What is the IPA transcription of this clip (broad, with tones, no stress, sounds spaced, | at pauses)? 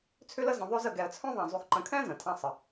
t͡sʰ ʏ˥ l ə˥ z ə̃˧ ðˤ ø˥ z ə˧ ɡ ɛ˧ ə̯ t͡sʰ œ̃˥ ðˤ ã˧ zˤ y˧ x ǃ ə̃˧ kʰ ɛ̃˥ z ə̃˩ tʰ ã˧ sˤ ə˩